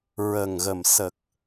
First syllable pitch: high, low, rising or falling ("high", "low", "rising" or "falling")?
low